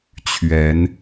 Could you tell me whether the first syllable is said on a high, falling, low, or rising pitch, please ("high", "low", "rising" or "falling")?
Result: rising